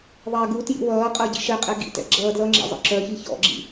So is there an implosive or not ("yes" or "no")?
no